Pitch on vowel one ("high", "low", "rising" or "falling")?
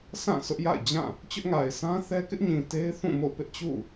falling